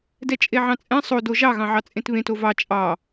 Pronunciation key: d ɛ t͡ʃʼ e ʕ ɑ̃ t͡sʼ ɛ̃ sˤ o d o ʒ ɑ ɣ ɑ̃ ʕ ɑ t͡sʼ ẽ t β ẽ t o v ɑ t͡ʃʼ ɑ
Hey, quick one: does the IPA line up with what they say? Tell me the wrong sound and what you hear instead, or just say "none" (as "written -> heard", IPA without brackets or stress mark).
none